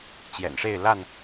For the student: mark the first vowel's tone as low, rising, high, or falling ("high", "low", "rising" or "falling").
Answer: low